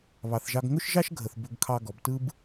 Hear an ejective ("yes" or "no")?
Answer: no